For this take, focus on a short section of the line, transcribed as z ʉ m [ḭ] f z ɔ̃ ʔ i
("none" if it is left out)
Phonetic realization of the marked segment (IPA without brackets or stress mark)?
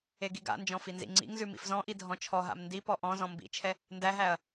ḭ